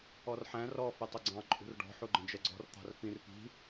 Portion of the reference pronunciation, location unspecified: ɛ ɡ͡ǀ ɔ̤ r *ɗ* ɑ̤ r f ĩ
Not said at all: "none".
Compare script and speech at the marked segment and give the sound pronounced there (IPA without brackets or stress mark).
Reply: t̪